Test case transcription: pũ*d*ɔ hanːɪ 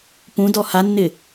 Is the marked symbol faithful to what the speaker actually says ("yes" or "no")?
yes